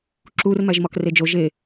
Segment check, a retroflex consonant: absent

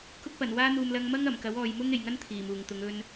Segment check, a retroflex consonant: absent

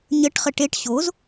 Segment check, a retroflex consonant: present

